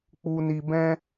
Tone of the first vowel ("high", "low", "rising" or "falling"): low